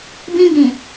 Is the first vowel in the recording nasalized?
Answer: yes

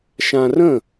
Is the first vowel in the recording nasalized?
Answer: yes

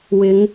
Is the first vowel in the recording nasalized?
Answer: no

